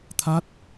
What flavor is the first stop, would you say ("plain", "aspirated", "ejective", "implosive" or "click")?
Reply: aspirated